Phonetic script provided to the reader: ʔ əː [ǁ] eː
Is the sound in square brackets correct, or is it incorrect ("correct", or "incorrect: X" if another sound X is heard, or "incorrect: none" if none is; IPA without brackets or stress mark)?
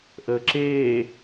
correct